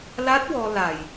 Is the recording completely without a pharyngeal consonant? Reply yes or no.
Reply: yes